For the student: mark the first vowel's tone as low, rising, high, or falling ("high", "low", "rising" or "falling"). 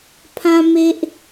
high